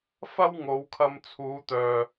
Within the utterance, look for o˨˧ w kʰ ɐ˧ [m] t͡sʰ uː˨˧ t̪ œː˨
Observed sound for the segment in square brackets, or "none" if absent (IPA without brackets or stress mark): m